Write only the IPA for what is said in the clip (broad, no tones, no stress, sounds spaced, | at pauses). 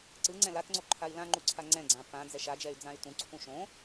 ǀ ɯ ŋ͡ǀ ɛ̃ l a t ŋ͡ǀ o ǃʰ a i̯ l ã ŋ͡ǃ u ǀʰ a ŋ͡ǀ ɛ̃ ɡ͡ǀ ã p ã d͡z ɛ ʃ a d͡ʒ ɛ y̯ d͡z ã y̯ t ũ ǀʰ ũ ʃ õ